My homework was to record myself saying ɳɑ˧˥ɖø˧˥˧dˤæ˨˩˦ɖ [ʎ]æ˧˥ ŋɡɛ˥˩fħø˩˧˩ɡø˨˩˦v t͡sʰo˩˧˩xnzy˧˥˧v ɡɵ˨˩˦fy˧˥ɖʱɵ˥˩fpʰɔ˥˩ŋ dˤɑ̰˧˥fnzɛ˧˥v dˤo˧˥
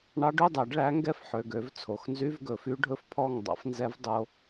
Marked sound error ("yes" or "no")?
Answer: yes